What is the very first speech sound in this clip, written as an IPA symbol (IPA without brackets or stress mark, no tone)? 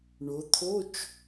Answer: ɳ